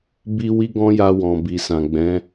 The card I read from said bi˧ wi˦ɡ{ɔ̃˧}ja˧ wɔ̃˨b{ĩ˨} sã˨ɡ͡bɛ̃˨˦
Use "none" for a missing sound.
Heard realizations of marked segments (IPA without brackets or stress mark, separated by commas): ɔ̃˦, i˨